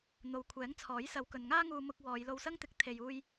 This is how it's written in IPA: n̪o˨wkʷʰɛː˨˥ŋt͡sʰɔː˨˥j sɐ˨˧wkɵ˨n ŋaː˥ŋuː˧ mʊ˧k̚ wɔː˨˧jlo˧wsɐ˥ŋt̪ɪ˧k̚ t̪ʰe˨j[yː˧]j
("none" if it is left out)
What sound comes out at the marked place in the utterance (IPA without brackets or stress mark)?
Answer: uː˧